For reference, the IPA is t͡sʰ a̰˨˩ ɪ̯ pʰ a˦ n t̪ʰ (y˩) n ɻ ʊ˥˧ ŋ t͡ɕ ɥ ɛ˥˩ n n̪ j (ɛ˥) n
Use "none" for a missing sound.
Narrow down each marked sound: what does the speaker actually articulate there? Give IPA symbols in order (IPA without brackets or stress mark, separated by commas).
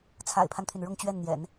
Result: y˩, ɛ̰˨˩˦